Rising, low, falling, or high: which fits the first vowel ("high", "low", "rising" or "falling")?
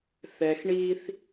low